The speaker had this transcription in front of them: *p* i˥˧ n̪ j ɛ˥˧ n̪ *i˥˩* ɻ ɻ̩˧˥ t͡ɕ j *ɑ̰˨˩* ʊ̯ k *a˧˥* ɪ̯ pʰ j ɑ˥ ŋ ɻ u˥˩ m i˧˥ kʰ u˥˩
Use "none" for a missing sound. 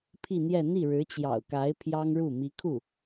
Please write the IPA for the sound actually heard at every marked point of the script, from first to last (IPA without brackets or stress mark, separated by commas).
pʰ, i˥˩, ɑ̰˨˩, a˧˥